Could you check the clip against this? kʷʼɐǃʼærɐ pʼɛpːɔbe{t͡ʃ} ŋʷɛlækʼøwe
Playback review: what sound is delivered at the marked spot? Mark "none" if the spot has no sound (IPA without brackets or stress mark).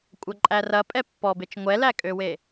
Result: t͡ʃ